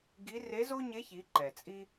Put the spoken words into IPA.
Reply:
ɡ i˧˥ r e˧˥ z o˥ ɲ e˧˥ ç i˩˧ ǃ ɛ˩ t͡sʼ i˥

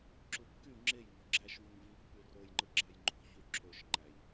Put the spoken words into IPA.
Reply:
ǁ u kː y ŋ͡ǁ e j ŋ o̤ ɡ͡ǁ æ ʃ v u ŋ v i pː y r o j ŋ͡ǃ ɯ ɡ͡ǁ ɑ j ŋ͡ǃ o̤ ç y ǁʰ ø ʃ ŋ͡ǃ æ j

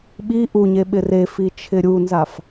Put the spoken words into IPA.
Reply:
ɓ i ʔ u ɲ e ɓ ɪ r e f i t͡ʃʰ ɪ ɾʲ u n z a f

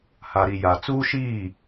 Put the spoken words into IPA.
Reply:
h a˨ ɾ i˨ j a˨ t͡s uː˦ ʃ iː˦˨

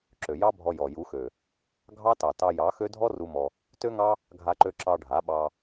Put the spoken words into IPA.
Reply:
ǁ ø˨ j ɑ˦ bʱ ɔ˧ j ɔ˨ j u˨˦ x ø˨ | ɡʱ ɑ˦ t ɑ˨ t ɑ˧ j ɑ˨˦ x ø˦ dʱ ɔ˦ r u˦ m ɔ˧ | t ø˦ ŋ ɑ˦ | ɡʱ a˧ ǃ ø˧ ǁ ɑ˧ ɖʱ a˨˦ ɓ ɑ˧

